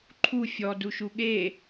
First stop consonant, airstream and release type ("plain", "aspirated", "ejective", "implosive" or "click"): click